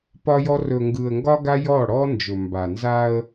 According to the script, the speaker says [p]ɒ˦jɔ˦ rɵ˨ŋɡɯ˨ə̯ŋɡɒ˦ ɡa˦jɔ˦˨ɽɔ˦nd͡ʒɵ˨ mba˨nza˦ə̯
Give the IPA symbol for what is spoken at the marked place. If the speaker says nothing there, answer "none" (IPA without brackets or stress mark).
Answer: p